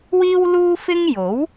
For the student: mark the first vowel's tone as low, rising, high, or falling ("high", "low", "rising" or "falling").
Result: high